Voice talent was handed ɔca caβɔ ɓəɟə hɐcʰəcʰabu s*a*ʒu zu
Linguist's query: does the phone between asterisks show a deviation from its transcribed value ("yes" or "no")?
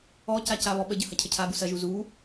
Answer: yes